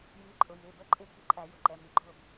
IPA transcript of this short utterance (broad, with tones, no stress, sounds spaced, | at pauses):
j iː˨˥ ǃʼ ʊ˩˧˩ j ɪː˩˧˩ b əː˦ ǃʼ ɪː˦ k i̤˥˩ ǃʼ æ˨˩˦ j ʊ˩˧˩ ǃ ɛ˩˧˩ m i˨˩˦ ɡ͡ǃ ʊː˥˩ b